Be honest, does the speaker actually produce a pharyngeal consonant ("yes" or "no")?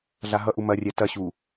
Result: no